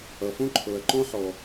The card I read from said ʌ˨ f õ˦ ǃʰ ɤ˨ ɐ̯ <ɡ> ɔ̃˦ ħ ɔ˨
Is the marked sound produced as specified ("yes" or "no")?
no